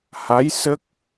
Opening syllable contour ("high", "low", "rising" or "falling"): rising